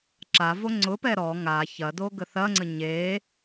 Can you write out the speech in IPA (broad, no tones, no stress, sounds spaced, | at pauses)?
ǁ a v o ŋ͡ǀ ʊ p ɛ ɾ ɔ ŋ a ç ɐ d o ɡ ə θ ɐ ŋ͡ǀ ə ɲ e